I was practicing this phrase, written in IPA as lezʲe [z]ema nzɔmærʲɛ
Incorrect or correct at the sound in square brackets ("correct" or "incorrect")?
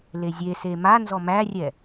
incorrect